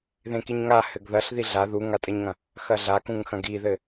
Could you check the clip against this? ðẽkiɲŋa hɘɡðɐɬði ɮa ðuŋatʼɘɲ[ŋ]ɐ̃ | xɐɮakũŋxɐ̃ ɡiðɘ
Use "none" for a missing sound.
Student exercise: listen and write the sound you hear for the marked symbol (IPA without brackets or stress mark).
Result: ŋ